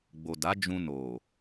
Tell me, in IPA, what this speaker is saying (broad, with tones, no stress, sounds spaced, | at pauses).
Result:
ɡ͡b o˨ d a˨˦ d͡ʒ ũ˧ n o˨